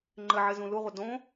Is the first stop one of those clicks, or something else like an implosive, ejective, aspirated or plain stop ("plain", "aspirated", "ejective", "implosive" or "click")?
click